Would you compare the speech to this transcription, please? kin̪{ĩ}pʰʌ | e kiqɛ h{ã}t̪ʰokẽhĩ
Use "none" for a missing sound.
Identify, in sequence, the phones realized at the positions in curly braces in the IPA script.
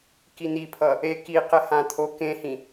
i, ã

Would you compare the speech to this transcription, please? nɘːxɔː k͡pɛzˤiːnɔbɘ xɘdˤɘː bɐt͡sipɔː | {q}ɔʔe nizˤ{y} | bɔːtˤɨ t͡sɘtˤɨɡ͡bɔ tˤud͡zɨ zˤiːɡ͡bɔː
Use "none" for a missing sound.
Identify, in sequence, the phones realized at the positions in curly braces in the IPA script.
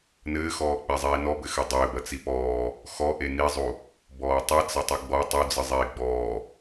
x, u

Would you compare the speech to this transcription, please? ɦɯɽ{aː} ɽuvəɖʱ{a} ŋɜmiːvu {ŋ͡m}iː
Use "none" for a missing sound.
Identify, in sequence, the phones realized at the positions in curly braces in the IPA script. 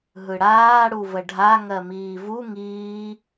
aː, a, ŋ

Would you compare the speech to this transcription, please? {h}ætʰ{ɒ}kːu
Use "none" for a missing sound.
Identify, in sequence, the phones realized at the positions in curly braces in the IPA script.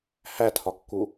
h, ɒ

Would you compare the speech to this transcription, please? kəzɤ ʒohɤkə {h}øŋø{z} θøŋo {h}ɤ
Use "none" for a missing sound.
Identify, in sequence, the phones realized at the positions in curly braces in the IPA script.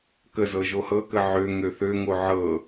ʕ, none, ʕ

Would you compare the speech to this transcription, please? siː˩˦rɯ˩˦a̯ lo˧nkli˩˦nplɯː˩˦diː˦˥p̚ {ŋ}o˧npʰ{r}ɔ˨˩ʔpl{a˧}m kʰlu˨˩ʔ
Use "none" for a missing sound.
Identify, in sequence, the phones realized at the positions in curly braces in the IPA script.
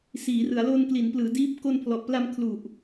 k, l, a˧

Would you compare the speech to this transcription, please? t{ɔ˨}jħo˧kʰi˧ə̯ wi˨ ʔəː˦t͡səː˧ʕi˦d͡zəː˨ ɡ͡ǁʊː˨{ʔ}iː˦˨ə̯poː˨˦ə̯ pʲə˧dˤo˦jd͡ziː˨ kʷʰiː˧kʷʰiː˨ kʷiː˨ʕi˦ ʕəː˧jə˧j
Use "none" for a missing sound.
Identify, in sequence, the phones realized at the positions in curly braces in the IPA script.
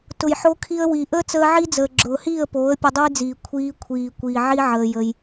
ʊ˨, h

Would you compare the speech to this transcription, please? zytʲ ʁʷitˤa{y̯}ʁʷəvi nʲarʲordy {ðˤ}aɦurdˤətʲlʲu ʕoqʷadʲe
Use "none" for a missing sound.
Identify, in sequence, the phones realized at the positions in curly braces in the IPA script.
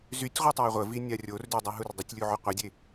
i̯, dˤ

